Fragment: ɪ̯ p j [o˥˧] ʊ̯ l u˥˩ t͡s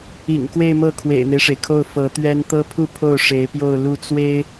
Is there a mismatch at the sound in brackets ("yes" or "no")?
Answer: no